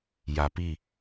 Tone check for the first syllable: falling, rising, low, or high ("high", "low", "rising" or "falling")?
low